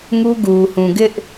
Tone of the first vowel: high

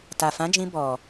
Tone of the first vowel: low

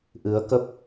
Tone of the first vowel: rising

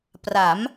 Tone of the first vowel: rising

